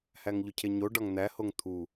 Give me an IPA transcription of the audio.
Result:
hæŋʎocʰeɲo ɖɒŋn̪æ hoŋt̪ʰu

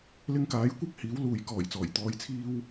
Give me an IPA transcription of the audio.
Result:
lɪ˧ŋkaː˨˥jkʷɐ˥k̚ hiː˨˥wluː˨j kɔː˨˩jt͡sɔː˨˩j t̪ɔː˧jt͡sʰiː˥w

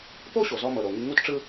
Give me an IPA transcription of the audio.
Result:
po˥ɕo˩zɔ˧mɤ˩ ɾo˩ŋi˧ ŋu˥tʈ͡ʂɯ˥

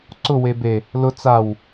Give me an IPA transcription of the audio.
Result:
ǀʊwe be | lʊ t͡saw

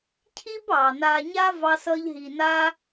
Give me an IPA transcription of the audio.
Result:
cʰi˦b ɑ˨na˧ ɲa˦ vɑ˧sʌ˧ʎ ɦi˨na˧

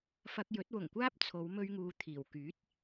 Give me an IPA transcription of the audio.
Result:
fɐ˧k̚jɵ˨˥t̚wʊ˨˩ŋkʷaː˥p̚ t͡sʰo˨˧w mɵ˧ɥŋuː˨ t̪ʰiː˨˩wkyː˨˥t̚

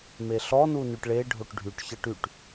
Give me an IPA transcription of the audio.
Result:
meɬɔ nunyʈɭe ɖʱoʈɖʱyʈ çəʈ yʈ

